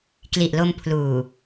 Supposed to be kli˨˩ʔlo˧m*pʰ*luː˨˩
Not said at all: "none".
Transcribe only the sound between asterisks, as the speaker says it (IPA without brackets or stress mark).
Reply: pʰ